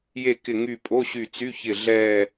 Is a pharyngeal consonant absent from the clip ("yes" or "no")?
yes